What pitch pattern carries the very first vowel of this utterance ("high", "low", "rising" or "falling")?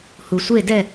low